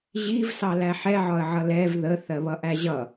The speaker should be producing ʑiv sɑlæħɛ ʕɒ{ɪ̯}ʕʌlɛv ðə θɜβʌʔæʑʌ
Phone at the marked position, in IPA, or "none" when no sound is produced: ə̯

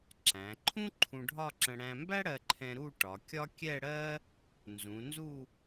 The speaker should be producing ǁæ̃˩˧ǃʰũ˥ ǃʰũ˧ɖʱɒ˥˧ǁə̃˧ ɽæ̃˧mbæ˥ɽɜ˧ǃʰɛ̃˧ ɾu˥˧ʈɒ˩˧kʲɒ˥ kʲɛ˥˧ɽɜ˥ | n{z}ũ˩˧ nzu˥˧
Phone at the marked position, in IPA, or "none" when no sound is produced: z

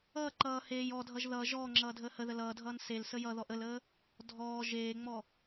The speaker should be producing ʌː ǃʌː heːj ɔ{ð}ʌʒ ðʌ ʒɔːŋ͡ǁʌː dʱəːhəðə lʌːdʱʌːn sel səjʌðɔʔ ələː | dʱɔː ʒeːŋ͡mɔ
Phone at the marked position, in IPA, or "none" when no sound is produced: dʱ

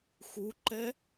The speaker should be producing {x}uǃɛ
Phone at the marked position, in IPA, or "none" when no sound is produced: x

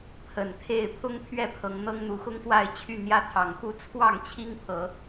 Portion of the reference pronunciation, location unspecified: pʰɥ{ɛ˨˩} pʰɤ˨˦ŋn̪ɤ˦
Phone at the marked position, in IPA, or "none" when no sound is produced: ɛ˥˨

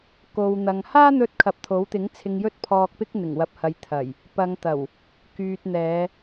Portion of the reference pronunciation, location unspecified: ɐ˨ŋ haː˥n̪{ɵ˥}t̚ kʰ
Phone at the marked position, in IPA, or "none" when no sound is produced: ɵ˧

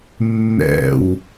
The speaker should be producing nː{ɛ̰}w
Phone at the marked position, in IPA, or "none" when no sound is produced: ɛ̰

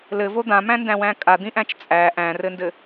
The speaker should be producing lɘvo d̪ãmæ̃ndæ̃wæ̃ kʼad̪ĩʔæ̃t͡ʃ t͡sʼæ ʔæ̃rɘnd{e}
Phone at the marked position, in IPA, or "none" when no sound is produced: ɘ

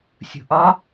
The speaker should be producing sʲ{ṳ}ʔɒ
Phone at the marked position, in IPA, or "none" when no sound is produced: ṳ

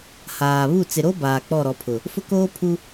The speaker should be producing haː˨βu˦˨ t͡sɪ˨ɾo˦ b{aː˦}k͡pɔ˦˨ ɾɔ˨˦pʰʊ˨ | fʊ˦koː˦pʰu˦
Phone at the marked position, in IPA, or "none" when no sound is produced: aː˨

